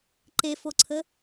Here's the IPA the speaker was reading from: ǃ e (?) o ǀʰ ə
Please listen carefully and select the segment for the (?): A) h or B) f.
B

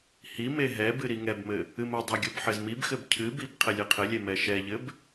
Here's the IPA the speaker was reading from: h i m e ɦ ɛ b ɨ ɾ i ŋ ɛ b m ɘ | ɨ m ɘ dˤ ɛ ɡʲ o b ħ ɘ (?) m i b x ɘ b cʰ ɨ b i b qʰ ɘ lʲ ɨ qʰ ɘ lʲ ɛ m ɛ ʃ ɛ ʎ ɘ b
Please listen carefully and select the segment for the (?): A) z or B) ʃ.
A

